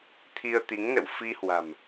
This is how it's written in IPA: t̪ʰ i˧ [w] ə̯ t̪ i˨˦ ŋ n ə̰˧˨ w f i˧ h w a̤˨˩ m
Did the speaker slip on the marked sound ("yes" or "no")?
yes